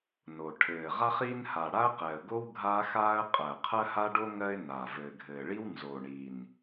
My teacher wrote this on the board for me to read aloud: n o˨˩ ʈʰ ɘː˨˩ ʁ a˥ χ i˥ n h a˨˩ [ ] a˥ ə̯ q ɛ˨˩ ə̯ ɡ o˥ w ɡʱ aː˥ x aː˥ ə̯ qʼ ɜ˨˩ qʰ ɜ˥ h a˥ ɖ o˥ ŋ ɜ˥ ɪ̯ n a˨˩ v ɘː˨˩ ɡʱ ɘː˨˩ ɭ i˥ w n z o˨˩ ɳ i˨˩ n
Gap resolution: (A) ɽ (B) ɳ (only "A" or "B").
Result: A